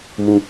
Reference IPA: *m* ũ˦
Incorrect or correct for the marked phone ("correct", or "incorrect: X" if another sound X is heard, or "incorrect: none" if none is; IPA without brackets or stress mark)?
correct